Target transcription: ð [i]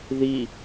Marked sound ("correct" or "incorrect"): correct